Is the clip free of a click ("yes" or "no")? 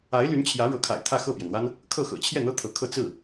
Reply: yes